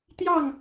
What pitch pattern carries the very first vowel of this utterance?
falling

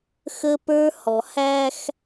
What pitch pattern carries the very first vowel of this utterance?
high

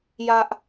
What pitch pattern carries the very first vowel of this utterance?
high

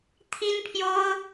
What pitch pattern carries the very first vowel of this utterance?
high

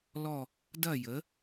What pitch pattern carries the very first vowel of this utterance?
falling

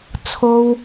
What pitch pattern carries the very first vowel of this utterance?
high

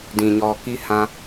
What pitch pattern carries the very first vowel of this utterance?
low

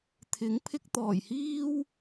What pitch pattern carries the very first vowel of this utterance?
rising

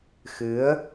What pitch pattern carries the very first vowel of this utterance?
rising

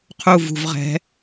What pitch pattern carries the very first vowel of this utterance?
falling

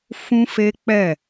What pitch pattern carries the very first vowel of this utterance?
high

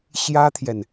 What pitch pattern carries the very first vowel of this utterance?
high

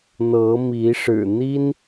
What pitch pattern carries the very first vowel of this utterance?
rising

